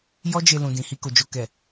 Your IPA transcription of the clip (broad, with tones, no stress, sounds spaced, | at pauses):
j ɔ˦ d͡ʒ e˧ l ũ˨ d ĩ˨ h i˧ k o˨ d͡ʒ o˧ k ɛ˨